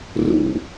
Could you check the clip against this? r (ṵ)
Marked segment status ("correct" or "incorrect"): correct